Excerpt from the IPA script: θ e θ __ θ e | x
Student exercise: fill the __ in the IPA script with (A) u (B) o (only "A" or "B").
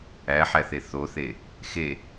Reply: B